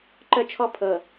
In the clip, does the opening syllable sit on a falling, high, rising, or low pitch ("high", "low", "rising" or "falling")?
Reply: high